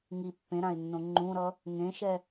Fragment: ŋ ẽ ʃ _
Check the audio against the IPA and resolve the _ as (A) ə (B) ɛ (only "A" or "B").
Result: B